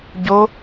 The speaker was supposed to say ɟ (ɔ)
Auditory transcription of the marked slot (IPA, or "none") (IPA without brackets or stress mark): o